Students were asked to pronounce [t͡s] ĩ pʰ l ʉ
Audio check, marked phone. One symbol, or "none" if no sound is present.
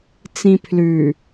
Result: t͡s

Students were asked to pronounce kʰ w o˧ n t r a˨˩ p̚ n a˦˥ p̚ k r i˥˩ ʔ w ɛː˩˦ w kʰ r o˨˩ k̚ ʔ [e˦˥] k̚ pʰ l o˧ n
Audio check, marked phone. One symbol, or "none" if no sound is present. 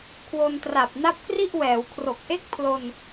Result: e˥˩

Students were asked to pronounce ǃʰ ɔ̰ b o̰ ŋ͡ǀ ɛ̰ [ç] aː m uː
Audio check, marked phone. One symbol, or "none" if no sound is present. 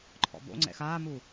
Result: x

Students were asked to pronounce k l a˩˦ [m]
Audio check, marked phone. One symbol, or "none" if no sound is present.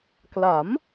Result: m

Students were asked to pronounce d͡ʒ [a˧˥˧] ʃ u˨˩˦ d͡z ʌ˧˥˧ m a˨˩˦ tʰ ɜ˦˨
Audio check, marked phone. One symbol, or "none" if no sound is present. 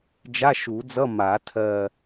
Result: a˧˥˧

